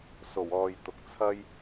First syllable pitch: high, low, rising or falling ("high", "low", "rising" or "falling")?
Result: low